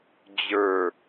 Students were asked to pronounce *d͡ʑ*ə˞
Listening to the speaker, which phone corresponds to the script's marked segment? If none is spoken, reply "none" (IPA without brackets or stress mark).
d͡ʑ